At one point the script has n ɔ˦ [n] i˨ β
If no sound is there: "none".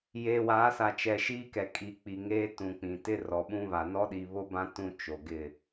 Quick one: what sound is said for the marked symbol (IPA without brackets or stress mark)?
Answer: ɗ